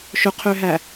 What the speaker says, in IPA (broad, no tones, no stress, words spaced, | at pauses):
ʃɵqʰøɦæ